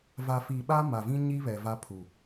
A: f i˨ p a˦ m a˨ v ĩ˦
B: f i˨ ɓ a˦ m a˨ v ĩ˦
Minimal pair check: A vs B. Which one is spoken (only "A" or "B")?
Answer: B